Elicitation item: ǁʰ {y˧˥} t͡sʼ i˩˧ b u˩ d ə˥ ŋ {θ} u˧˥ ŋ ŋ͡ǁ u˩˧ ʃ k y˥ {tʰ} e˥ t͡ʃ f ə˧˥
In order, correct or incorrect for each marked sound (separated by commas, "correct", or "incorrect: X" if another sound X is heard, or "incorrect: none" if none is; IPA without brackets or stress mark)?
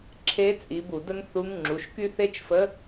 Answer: incorrect: e˧˥, correct, incorrect: θ